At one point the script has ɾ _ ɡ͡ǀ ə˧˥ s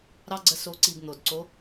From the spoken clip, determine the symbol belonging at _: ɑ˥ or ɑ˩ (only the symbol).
ɑ˥